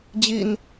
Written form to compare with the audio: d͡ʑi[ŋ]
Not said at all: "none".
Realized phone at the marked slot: n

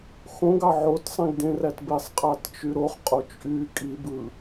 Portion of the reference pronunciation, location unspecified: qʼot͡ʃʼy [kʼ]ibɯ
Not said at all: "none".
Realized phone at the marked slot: kʼ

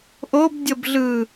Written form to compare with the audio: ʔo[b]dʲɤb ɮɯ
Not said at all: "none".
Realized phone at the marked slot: b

